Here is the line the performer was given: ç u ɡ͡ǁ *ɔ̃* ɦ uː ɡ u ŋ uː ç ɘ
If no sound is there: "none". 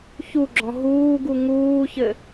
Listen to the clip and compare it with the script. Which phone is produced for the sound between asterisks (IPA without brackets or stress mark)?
ɔ̃